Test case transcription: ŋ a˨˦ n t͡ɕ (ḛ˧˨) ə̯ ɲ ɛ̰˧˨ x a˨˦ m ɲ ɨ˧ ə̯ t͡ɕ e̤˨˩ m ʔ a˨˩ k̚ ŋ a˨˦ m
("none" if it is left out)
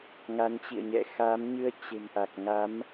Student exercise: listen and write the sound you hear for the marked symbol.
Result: ḭ˧˨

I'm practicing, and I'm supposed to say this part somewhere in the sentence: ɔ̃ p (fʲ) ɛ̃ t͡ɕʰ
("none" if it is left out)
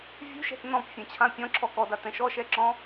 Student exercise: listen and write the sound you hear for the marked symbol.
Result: fʲ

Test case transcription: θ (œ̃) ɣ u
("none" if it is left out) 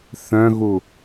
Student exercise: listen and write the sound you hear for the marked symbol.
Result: œ̃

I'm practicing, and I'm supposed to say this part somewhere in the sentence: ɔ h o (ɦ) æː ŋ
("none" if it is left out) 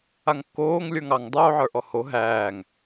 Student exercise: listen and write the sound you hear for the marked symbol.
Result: ɦ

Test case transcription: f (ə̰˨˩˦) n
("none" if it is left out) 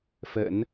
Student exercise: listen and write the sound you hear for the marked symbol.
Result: ə̰˨˩˦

